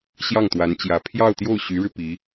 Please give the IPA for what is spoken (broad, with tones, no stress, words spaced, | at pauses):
ɕjɑ˥˩ŋt̪wa˧˥nt͡ɕjä˧˥ pʰjɑ˥˧ʊ̯t̪jo˥˩ʊ̯ɕy˧˥ɻɻ̩˧ pi˧˥